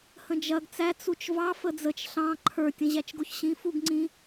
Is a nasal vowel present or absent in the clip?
present